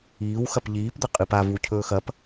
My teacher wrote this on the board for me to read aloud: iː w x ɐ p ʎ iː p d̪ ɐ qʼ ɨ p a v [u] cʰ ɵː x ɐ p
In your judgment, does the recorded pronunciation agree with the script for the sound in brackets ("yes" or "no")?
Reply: yes